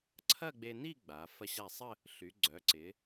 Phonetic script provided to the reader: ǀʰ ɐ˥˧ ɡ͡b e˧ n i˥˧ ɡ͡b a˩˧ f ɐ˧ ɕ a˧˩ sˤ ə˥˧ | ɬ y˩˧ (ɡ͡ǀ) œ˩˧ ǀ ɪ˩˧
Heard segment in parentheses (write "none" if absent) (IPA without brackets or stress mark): ɡ͡ǀ